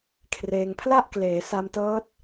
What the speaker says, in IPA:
kʰ r eː˧ ŋ pʰ l a˥˩ ʔ k l eː˩˦ s a˧ m t ɤː˦˥ t̚

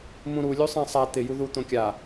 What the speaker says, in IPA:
m ũ ɾ u lʲ u sˤ ã sˤ a t̪ ɪ j u ð u t̪ õ kʲ a

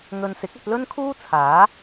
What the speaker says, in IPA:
ŋ ɵ˨ n s ɪ˨˥ k̚ ɐ˧ t̚ l ɵ˥ n kʰ uː˥ t͡sʰ aː˨˥

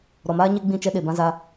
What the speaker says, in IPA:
ɾ ɔ˨ m aː˦ ɲ e˦ ɡ͡b ĩ˦˨ t͡ʃ ɛ˦ ɗ e˨ b ã˦ z a˦

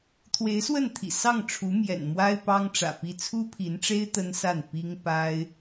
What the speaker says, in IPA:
t̪ʰ w e˧˥ ɪ̯ s w ə˥˩ n t̪ʰ ḭ˨˩ s ɑ˥˩ ŋ ʈ͡ʂʰ u˧˥ m j ɛ̰˨˩ n m w a˥ ɪ̯ p ɑ˥ ŋ ʈ͡ʂ ä̰˨˩ p i˥˩ t͡sʰ u˥ pʰ i˧˥ n ʈ͡ʂ e˥ ɪ̯ t̪ ə˥ n s a˥˩ n p i˥ ŋ p a˥ ɪ̯

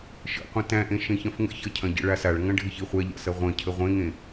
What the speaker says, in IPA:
ʃ ə̰ qʷ ɐ̃ t æ̃ ʔ ẽ ʃ ẽ ç ɐ̃ f ŋ ə̰ ç ɐ cʰ ɐ̃ ɟ ə̰ ɭ a s a ɭ ŋ ɐ̃ ɖʱ ɪ ç i χʷ æ ʎ a̰ s ɐ ʁʷ ɐ̃ cʰ ə ʁʷ ẽ ŋ ẽ

